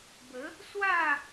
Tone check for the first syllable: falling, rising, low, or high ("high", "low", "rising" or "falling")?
rising